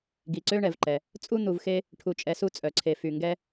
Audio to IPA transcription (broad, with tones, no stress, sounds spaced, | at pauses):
ɡ i˩ ǀ ø˦ ɳ ɛ˩ v ǃ ɛ˩ | t͡sʼ u˥ n̪ u˨ v x e˦ | ʈʰ u˨ t͡ʃʼ ɛ˨ s u˦ t͡sʼ œ˩ ǀʰ e˨ f y˩ ŋ ɡ ɛ˦